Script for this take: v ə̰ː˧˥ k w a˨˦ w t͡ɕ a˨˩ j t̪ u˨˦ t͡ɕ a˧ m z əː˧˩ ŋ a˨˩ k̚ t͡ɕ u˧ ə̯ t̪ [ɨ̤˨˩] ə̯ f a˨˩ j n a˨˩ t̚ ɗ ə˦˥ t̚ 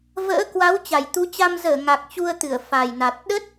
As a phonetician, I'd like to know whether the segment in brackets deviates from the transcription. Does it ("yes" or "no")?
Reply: yes